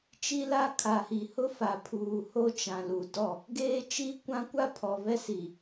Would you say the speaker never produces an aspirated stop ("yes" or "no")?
no